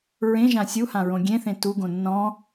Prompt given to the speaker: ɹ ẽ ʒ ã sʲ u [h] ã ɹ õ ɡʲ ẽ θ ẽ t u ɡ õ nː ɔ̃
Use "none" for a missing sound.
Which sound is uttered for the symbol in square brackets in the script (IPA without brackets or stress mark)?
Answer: h